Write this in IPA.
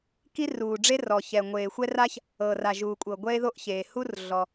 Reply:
k i˥ r uː˩ ɖ͡ʐ e˥ r ɔ˩ ç ɛ˩ ŋʷ eː˩ xʷ ɛ˥ r a˥ ç | ɤ˩ r a˩ ʒ uː˩ kʷʼ ɤ˩ ɡʷ ɛ˥ e̯ ð o˥ ʔ ç eː˩ h u˥ r ɮ ɔ˩

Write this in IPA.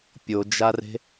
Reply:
pʲ o d͡ʒ a r e̤

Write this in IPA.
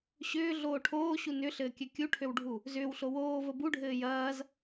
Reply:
ɕ ʏː ɮ oː ʈʰ oː ɕ u n ʏ ɬ ɘː kʲ ɘ kʲ u ʈʰ ø w ɖʱ u | z ʏː w ɬ o w oː v ə b u ɖʱ ɘː j ɐː z

